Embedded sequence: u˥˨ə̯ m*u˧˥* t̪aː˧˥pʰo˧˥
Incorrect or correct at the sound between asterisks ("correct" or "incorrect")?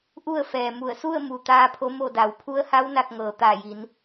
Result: incorrect